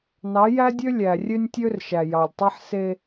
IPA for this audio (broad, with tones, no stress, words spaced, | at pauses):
nɑ˨˦jæ˦dʲø˦ lʲæ˨rʲø˦nʲtʲø˦rʃæ˨ jɑ˨lʲtˤe˦ħse˦